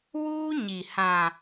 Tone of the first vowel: high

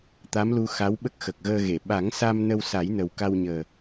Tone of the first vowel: rising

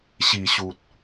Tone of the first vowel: low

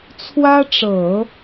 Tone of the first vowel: high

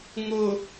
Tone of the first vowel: low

